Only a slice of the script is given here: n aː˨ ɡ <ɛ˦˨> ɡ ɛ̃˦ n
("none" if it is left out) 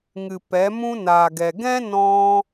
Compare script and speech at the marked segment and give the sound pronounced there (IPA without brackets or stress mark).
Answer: ɛ˨